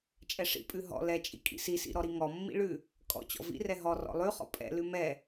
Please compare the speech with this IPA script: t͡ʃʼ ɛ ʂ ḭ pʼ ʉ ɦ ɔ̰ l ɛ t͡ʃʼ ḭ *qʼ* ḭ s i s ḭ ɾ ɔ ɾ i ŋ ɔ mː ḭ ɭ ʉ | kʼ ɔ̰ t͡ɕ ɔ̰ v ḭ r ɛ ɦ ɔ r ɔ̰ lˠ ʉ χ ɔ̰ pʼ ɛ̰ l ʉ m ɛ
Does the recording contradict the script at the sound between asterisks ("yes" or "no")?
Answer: yes